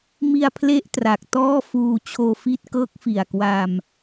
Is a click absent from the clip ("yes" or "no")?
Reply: yes